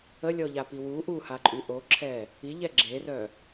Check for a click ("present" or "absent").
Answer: present